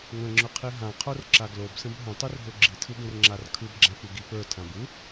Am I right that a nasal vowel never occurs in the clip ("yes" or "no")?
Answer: no